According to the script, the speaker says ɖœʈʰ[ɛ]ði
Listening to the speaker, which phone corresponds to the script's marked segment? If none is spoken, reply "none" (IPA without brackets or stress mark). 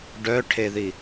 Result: e